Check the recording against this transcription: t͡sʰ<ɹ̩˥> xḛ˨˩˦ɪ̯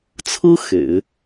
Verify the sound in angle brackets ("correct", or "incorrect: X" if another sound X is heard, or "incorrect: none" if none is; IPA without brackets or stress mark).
correct